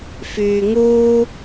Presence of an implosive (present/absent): absent